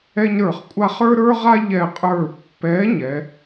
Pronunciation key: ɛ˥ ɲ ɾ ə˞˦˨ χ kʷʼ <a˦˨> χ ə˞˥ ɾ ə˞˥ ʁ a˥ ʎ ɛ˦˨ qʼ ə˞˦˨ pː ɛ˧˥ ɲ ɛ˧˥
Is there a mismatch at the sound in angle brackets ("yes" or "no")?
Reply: yes